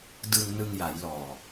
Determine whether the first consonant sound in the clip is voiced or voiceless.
voiced